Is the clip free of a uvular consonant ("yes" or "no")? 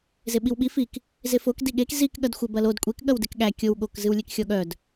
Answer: yes